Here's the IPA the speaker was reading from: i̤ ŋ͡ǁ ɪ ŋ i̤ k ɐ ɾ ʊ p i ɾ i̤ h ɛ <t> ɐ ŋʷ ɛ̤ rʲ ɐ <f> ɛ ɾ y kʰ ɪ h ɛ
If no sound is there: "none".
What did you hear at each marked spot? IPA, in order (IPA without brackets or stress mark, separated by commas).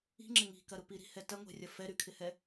t, f